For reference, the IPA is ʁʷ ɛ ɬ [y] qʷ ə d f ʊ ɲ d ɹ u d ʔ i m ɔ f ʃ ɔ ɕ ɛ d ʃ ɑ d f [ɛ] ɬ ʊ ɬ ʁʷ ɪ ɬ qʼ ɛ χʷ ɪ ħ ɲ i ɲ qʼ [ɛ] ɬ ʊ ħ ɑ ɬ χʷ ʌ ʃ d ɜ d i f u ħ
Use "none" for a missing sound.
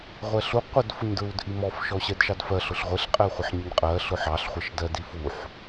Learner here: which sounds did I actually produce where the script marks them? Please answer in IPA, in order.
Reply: u, ɜ, ɜ

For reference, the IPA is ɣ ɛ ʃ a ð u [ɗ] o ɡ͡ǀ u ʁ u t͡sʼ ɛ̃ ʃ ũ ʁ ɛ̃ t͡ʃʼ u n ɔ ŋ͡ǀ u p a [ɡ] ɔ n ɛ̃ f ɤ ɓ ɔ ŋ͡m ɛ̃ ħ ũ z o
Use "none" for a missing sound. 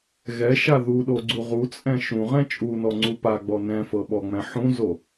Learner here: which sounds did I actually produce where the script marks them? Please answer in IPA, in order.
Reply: ɗ, ɡ͡b

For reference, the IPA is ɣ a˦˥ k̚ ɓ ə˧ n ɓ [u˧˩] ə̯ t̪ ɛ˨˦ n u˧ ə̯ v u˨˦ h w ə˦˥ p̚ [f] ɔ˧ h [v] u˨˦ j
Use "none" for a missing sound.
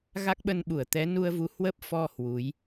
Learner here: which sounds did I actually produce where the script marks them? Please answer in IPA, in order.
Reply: u˧˩, f, w

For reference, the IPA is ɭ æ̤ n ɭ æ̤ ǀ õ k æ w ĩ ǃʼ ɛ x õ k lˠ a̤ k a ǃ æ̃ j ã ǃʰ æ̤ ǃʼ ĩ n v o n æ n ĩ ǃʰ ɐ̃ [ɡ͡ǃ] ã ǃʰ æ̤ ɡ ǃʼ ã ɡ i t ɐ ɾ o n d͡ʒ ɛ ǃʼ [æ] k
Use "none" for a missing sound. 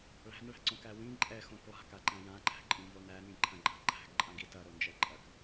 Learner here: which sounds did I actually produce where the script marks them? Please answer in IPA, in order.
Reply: ɡ͡ǃ, ɐ

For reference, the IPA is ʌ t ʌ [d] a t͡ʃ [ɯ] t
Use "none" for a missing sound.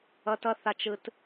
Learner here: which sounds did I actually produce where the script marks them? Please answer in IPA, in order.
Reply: θ, ɯ

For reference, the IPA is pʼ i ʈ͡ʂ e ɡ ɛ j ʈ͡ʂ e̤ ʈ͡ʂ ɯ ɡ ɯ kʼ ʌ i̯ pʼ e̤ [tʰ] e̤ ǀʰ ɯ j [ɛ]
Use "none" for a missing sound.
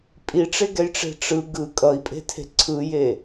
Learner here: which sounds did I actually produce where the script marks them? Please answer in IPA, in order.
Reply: tʰ, e

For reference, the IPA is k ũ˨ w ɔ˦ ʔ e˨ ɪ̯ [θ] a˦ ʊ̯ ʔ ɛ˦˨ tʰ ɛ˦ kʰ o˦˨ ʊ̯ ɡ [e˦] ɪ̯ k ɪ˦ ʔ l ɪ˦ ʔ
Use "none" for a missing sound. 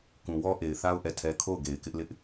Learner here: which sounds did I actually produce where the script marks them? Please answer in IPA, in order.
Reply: θ, e˨

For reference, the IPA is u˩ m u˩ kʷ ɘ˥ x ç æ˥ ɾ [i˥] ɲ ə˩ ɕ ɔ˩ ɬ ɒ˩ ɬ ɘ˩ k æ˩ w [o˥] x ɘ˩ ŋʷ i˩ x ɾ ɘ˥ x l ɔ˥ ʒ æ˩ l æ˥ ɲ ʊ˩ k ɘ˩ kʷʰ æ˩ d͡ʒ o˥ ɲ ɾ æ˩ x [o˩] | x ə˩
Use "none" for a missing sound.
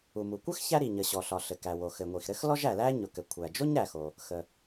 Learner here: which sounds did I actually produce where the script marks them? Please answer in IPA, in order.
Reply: i˩, o˩, o˩

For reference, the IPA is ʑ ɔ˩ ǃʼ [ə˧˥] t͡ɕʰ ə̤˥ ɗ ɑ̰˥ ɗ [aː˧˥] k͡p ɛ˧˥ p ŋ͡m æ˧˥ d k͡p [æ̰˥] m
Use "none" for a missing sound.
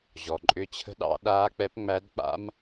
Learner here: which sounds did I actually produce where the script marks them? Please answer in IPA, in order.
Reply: ʏ˧˥, aː˧˥, a̰˥

